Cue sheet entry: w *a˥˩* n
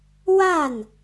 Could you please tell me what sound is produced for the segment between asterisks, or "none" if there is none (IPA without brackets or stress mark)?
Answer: a˥˩